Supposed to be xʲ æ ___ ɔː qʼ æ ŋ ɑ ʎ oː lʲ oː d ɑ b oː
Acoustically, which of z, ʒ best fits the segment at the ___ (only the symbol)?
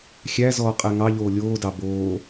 z